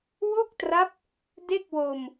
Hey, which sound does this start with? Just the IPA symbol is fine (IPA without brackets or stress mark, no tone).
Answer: w